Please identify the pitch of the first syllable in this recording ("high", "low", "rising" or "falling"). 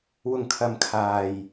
low